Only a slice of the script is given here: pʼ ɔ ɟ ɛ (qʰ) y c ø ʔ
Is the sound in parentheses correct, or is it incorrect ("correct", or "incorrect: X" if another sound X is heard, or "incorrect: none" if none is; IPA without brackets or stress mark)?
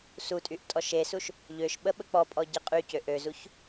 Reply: incorrect: qʼ